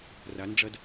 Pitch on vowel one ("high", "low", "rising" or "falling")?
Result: rising